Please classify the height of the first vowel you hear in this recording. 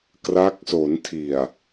low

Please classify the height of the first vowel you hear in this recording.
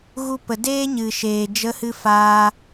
high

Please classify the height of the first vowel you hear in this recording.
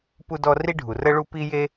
high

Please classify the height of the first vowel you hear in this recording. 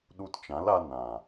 high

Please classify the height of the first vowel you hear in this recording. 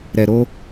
mid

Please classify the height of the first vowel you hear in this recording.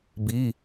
high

